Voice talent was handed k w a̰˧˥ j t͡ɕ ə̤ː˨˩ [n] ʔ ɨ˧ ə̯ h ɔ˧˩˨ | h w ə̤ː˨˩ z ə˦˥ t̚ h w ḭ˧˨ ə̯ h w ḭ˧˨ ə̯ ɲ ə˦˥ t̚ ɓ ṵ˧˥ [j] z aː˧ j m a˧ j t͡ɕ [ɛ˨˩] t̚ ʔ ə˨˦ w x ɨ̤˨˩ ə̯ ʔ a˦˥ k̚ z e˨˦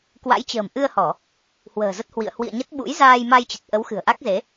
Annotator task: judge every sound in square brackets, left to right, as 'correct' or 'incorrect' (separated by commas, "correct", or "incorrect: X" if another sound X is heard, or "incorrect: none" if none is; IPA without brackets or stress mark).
incorrect: m, correct, incorrect: ə˨˩